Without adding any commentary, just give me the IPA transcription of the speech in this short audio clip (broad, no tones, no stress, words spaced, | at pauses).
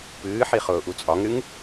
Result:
pɨːħi χʊːʔut͡sʼɒŋɾɨŋ